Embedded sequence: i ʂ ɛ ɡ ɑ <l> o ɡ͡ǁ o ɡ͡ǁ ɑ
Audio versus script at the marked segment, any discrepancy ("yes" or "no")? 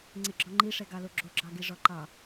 no